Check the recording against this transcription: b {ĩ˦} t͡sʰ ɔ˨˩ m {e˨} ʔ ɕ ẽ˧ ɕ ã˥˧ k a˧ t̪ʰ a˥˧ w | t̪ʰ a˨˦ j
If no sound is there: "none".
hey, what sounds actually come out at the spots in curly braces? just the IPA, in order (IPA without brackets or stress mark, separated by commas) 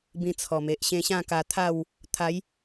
ĩ˧, e˨